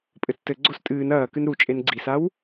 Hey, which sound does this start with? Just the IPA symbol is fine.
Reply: pʼ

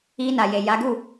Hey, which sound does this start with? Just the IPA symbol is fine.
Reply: i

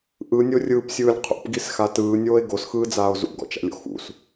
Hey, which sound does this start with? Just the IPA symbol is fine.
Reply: ʔ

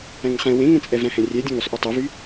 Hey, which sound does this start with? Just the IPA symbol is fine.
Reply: æ̃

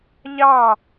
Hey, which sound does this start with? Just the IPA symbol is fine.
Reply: ʎ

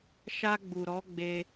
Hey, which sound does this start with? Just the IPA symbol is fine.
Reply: ʃ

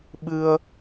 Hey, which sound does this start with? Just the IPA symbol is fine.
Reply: ɓ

